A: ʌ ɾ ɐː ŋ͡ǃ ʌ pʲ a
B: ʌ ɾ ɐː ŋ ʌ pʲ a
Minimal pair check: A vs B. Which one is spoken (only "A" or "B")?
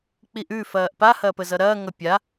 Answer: B